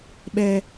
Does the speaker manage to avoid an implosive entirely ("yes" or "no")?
no